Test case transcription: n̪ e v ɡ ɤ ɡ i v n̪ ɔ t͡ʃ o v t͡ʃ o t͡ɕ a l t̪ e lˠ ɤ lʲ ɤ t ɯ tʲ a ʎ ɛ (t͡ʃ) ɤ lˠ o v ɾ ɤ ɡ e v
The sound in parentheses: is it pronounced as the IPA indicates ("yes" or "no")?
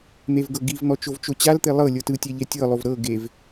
no